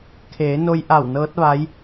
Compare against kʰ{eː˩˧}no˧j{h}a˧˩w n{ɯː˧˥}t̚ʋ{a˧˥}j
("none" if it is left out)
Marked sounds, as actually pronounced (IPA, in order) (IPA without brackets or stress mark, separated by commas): eː˩˧, ʔ, ɤː˧˥, a˧˥